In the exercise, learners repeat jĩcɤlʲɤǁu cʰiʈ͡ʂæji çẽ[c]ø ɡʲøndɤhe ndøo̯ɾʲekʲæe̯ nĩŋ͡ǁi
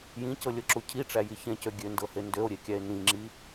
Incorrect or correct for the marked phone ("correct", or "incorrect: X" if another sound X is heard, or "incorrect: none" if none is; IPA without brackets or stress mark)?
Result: correct